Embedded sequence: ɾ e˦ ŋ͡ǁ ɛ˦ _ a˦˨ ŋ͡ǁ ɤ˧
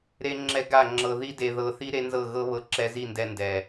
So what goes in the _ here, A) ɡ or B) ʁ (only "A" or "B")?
A